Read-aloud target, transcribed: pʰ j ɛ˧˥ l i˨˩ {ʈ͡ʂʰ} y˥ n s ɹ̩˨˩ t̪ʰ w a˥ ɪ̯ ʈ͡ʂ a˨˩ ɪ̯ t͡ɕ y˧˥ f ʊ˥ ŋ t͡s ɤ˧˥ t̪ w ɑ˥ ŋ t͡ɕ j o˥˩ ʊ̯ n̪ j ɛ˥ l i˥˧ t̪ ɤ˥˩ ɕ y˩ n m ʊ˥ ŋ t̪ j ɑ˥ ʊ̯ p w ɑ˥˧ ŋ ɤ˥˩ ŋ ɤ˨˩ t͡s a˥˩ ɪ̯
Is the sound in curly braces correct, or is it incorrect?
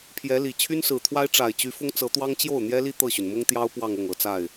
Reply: incorrect